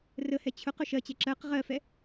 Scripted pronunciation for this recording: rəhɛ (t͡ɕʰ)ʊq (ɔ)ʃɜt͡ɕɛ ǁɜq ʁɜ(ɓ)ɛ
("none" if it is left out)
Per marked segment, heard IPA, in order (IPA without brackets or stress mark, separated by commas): t͡ɕʰ, ʊ, f